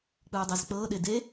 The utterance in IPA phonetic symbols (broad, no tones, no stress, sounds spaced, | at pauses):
k͡p ɯː dˤ e z k͡p ɤː ɗ e d e